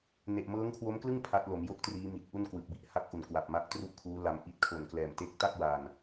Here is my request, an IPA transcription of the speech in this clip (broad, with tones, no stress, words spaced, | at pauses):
ne˨˩ʔmɤː˦˥ŋkʰwo˦˥mklɯ˥˩ŋ pʰa˦˥t̚lo˩˦m jo˥˩k̚triː˦˥mi˨˩t̚ ʔu˥˩nkwɯ˨˩k̚bi˦˥ʔ ha˦˥k̚ʔu˨˩n kwa˨˩p̚ma˦˥ʔtru˥˩ʔkʰuː˦˥ la˧mʔi˥˩t̚ kʰo˨˩n klɛː˨˩mte˦˥k̚ta˥˩k̚ wa˧n